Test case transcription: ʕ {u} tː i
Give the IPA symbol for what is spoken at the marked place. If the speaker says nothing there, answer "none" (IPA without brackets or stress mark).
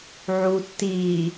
u